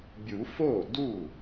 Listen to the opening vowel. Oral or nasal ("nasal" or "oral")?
oral